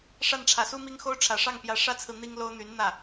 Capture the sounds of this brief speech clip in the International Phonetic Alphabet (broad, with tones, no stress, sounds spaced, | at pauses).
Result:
ʂ a˥˩ n ʈ͡ʂʰ ä˨˩ s u˥ m i˥ ŋ x o˥ ʊ̯ ʈ͡ʂʰ ä˨˩ ʂ ɑ˥˩ ŋ p j ä˧˥ ʂ ä˥ t͡sʰ ɹ̩˨ n̪ i˥ ŋ l o˥ ʊ̯ n̪ y˧˥ n n̪ ä˥˩